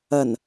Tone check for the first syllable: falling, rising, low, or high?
low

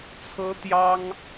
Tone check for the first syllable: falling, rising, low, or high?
high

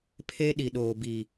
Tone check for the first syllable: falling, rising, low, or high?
high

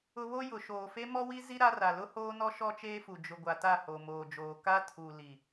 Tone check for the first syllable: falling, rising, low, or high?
high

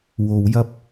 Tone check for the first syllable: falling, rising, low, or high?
low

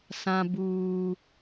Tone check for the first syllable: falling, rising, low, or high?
high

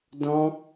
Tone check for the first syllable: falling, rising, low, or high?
high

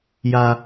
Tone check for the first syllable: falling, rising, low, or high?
high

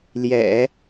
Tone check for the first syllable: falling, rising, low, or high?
low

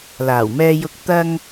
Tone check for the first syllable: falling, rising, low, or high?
low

